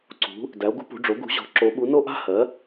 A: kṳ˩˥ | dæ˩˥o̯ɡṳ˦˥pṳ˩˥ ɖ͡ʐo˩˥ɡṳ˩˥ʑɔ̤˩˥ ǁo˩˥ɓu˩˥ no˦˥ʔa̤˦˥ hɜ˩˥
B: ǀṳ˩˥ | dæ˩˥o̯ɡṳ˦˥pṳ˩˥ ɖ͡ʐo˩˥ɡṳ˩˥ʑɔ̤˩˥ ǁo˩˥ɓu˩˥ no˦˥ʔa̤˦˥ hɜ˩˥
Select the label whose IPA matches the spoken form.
B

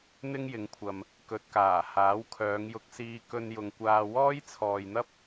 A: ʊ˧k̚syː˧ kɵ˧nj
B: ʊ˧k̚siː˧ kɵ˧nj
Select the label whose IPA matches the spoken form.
B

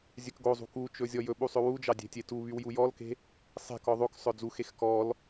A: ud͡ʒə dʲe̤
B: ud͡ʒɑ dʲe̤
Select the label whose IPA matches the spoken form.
B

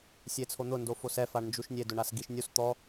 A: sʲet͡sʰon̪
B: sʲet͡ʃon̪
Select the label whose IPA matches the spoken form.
A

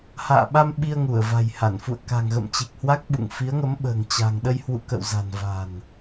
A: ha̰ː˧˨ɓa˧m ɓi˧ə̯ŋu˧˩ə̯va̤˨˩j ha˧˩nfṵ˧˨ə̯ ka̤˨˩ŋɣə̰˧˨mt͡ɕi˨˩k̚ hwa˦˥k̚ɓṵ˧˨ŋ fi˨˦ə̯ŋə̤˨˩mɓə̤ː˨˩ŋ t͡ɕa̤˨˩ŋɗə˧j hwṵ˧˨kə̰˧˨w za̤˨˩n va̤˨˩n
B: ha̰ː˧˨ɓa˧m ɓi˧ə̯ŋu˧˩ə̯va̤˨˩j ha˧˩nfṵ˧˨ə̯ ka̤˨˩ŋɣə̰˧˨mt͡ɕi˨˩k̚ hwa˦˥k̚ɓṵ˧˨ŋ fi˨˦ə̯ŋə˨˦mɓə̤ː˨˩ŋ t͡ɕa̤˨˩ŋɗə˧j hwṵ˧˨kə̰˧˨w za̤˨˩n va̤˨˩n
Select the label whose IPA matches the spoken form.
B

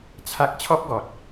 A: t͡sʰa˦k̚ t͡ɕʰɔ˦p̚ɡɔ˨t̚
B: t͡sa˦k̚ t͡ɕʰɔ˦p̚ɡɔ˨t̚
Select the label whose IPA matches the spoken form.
A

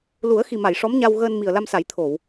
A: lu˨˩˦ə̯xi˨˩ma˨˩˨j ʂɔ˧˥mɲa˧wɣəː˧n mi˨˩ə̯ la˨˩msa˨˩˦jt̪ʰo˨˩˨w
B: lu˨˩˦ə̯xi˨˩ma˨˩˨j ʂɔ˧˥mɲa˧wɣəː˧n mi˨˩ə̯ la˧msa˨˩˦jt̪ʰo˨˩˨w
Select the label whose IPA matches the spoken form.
B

